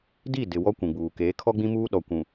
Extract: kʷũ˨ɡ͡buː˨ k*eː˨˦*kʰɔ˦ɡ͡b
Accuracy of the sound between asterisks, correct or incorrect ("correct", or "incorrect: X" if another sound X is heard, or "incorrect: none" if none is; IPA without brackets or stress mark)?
correct